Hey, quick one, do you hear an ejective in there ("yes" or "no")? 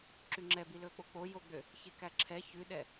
no